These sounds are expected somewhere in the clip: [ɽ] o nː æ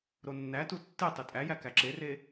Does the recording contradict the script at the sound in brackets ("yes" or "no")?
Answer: yes